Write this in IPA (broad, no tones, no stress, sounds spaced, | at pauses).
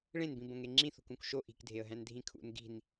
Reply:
ɭ ẽ n b ĩ b õ ŋ e ŋ͡ǁ ĩ θ ṳ k ũ k ʃ o ʔ i̤ k dʱ e ə̯ ɦ æ̃ n dʱ ĩ kʰ ṵ n ɡ i̤ n